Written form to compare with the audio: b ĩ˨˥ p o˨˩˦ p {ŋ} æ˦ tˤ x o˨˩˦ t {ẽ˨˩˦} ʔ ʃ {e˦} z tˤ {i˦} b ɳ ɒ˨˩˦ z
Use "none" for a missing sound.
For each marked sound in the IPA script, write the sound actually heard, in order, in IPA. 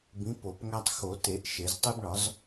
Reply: ŋ, e˨˩˦, e˨˩˦, i˦

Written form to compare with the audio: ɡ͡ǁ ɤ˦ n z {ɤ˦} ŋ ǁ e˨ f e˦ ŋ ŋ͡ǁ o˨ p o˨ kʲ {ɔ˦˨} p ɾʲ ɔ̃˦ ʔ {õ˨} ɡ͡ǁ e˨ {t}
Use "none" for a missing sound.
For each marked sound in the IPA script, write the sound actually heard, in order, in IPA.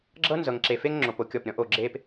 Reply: ɤ˨, ɔ˦˨, o˨, p

